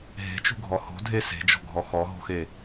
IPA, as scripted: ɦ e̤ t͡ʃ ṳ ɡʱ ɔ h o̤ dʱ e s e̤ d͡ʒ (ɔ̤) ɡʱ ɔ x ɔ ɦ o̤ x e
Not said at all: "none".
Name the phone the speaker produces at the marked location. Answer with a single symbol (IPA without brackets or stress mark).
ɔ̤